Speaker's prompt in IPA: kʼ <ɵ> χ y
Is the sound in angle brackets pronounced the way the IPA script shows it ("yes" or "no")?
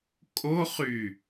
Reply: no